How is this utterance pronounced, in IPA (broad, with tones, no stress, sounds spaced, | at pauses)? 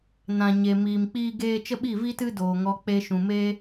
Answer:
n ã˨ ɲ e˨ m iː˨ m k͡p iː˦ ɡ eː˦ t͡ʃ ə˦ ɓ i˦˨ v iː˦ t ɨ˦ d oː˨ ŋ ɔ˧ k͡p e˧ ʃ ũ˨ m eː˦